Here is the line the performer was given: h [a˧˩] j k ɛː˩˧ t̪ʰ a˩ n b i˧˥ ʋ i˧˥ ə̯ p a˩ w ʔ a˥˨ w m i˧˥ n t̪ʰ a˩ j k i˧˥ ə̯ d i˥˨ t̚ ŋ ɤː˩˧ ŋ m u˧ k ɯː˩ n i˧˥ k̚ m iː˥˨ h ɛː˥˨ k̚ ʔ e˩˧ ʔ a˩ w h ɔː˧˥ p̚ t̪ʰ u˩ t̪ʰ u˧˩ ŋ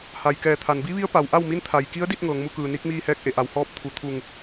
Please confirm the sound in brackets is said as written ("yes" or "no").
no